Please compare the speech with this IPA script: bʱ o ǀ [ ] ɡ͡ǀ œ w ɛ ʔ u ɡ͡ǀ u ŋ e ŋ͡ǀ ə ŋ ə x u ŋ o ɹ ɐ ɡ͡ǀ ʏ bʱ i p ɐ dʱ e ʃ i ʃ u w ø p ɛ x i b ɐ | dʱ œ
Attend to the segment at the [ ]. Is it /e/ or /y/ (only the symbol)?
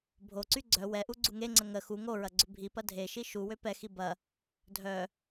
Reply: y